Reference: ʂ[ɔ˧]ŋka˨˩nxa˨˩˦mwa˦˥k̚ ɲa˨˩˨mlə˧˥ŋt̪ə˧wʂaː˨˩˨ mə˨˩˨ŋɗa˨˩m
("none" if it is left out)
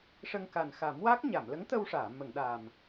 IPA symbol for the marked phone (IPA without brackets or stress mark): ə˧